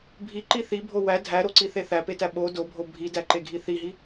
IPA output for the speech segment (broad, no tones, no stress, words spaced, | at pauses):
bʱiǃi θibʱo wæ dʱæɾoǀiθe θæpetæ ɓo dobʱo bʱidæǃeɡʱi θiɦi